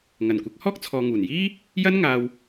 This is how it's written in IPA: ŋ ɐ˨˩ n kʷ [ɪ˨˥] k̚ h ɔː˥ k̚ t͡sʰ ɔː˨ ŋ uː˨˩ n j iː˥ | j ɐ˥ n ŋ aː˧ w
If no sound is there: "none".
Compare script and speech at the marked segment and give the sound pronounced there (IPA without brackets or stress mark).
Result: ɪ˨˥